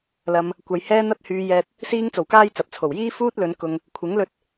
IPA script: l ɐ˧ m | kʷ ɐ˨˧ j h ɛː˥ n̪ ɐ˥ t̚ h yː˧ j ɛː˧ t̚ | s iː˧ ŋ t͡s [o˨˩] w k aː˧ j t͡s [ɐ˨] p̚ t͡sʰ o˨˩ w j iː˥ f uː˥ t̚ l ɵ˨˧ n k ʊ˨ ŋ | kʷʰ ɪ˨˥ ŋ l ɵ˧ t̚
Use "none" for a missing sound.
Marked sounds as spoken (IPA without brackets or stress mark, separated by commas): o˨˩, ɐ˨